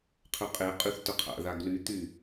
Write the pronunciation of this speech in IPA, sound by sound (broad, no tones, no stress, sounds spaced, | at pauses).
qʰ ø qʼ e qʼ y θ t œ qʰ a̰ ð a ɡ l y t̪ y